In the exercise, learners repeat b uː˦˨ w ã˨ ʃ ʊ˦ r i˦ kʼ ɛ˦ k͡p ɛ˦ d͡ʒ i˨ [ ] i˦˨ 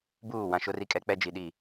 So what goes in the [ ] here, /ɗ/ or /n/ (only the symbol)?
ɗ